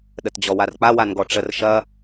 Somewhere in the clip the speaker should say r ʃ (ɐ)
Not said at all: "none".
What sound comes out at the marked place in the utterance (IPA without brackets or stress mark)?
ɐ